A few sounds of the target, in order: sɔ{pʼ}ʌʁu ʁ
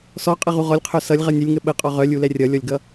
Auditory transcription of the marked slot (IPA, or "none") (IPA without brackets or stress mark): qʼ